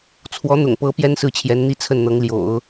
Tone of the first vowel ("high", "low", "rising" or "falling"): rising